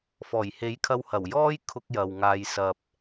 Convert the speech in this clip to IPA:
f ɔː˨˩ j h e˨˥ j kʰ ɐ˧ w h ɐ˨˩ w j ɔː˥ j kʰ ʊ˧ k̚ j ɐ˨ w ŋ aː˨ j s ɐ˨ p̚

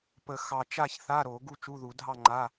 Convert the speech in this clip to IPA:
p ə˨˩˦ x ɑ˨ t͡ʃ a˥˨ ç θ a˧˥˧ ɾ o˨˩˦ ɡ u˥˨ t͡ʃ u˧˥˧ ð u˨˩˦ dʱ ɑ˥˨ ŋ͡ǃ a˧˥˧

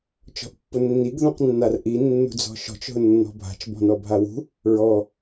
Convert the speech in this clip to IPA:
t͡ʃ ɔ̤ ʔ pː ʊ nː i ɡ ð ũ q nː a r ʔ i nː ṳ d͡z ɔ̤ ʃ ɔ̤ t͡ʃ ɦ ʊ nː ɔ̤ bʱ a̤ t͡ʃ b ɔ̤ n ɔ bʱ a w ṳ | ɹ ɔ

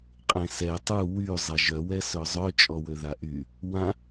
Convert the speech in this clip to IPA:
qʼ ẽ s ɛ tˤ u w y zˤ a ʒ œ w ɛ s œ zˤ œ t͡ʃʼ ɔ w ø ð a ʔ y | w ã

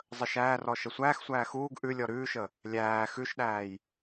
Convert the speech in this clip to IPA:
zˤ ə ʃ æː r ɔ ʃ ə sʷ æː x sʷ æː x uː ɡ ʔ ʉ lʲ ɔ ɾ ʉː ʃ ə | lʲ æː x ʉ ʃ ɗ æː j

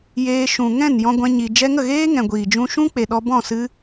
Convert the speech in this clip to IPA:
j eː˧ ʃ ũ˨ ŋ ɛ̃˦˨ n j ɔ̃˧ ɡʷ ɛ̃˧ ɲ i˨ d͡ʒ ɛ˧ ŋ ə˦˨ ɣ eː˦ ŋ ɛ̃˨ ɡʷ iː˨ d͡ʒ ũ˧ ʃ ũ˦ k͡p e˨ ɗ ɔ˧ b ɔ̃˦˨ s ɨ˧

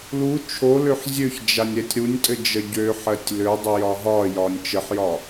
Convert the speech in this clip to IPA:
l u t͡ʃʰ o l ø ħ zʲ ø ç d͡ʒ a nʲ ɾ ɛ tʲ ɾ u nʲ tʼ ɘ d͡ʒ ə ɟ ø ħ ɜ tʲ l ø dˤ ə j ɒ ɦ ɒ j ɒ nʲ t͡ʃ ə ħ j ɒ

